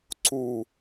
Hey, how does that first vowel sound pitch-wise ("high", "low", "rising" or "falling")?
falling